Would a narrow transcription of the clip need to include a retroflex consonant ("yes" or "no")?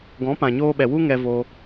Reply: no